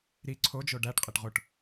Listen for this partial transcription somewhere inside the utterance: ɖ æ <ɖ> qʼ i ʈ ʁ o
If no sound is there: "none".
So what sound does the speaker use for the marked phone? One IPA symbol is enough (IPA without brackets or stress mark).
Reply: ʈ